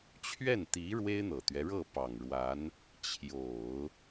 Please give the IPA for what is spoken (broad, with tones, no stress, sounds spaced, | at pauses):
t͡ɕʰ ɥ ɛ˥˩ n t̪ i˧˥ ɻ w e˥ ɪ̯ n̪ ɤ˨˩ t̪ ɥ ɛ˦ ɻ ɤ˥˩ p ɑ˨˩ ŋ ɻ w a˧˥ n | t͡ɕʰ j o˨˩˦ ʊ̯